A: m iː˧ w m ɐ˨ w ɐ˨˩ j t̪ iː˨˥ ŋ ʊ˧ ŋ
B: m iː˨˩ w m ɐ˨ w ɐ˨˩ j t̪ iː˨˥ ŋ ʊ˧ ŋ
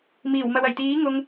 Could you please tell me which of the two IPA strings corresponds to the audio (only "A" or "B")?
B